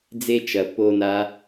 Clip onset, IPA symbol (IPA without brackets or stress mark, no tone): d͡z